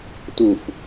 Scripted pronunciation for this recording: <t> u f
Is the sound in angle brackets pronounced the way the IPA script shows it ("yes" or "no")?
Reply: yes